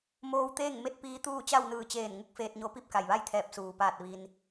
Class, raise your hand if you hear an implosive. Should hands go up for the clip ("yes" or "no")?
no